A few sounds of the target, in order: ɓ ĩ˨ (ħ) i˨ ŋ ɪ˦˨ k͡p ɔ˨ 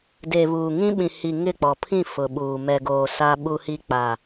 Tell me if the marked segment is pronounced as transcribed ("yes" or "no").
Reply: no